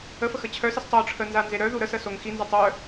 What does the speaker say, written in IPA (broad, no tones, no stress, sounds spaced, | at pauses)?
ə f ə x ə t͡ɕʰ œ s i s tˤ o ʈ͡ʂʰ ə n z a n z e ɾ œ ð u ɾ ə s ə s o ŋ x i n z a tˤ œ